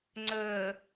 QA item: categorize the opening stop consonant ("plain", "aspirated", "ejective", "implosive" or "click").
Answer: click